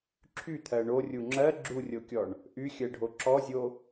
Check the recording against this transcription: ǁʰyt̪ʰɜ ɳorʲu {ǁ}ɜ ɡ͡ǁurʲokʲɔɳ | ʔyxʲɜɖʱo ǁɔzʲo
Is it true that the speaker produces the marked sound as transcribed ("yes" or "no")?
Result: no